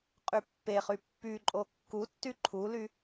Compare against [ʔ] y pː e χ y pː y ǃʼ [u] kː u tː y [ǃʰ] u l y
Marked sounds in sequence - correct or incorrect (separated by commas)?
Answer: incorrect, incorrect, correct